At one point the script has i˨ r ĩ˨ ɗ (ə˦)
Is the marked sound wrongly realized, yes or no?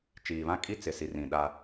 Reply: yes